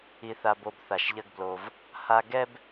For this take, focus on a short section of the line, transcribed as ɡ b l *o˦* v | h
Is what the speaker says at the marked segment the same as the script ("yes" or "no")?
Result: no